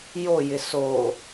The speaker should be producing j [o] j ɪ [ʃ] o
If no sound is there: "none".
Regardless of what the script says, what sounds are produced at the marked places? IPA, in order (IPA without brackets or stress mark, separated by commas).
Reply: o, s